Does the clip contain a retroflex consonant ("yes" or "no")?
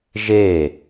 no